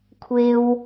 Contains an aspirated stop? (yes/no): yes